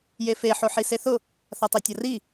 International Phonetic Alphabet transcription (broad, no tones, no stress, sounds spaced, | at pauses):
j e f e ħ o ħ i s e θ ʊ | θ ɐ tˤ e tʲ ɐ r i